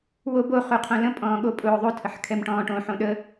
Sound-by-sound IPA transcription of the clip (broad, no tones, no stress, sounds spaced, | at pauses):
w o b o χ u qʰ õ l ə̃ pʼ ɔ̃ː ɠ o pʼ ʊː ðˤ o tʰ ə ħ kʰ ɛ m ʈ ɔ̃ː ʈ õ ħ õ ɗ ə